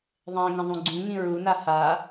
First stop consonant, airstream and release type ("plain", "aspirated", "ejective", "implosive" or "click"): click